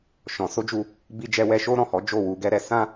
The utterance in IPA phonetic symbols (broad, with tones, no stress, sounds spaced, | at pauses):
ʃ ɔ̃˨ s o˧ d͡ʒ u˧ | b i˧ d͡ʒ ɛ˧ w ɛ˧ ʃ o˦ ɾ ɔ̃˦˨ h ɔ˨˦ d͡ʒ o˦˨ w u˧ ɡ ɛ˦ ɾ ɛ˧ s ã˦